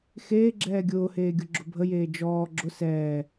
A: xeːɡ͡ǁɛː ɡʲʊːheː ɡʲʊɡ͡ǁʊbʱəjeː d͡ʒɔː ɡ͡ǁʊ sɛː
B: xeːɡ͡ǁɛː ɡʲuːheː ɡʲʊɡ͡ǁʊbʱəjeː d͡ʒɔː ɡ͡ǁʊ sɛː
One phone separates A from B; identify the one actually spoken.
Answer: A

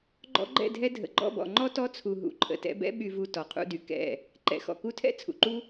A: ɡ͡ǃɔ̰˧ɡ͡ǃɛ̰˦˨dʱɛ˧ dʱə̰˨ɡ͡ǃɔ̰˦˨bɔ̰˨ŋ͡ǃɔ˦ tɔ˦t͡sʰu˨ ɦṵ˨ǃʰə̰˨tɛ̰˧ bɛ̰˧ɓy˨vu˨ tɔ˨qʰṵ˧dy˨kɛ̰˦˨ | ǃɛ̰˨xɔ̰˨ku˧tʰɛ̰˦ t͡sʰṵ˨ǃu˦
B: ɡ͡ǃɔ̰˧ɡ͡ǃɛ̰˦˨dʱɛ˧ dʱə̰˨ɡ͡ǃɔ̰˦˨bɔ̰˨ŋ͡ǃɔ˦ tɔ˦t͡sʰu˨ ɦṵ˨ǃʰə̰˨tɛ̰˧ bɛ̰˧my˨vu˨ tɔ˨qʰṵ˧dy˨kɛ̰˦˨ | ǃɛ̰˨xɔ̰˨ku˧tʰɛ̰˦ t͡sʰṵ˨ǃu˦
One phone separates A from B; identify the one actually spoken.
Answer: A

